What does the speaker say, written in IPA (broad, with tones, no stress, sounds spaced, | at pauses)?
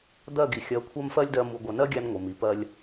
d̪ ɜ˦˨ ɡ i˨ xʲ ɜ˨˦ kʷʰ ɜ˦ m f ɜ˦ lʲ d ɜ˦ m u˨ ɡʷ ɘ˨ n ɜ˦ ɡʲ æ˦ n ŋʷ ɘ˨ m i˨ p ɜ˦ lʲ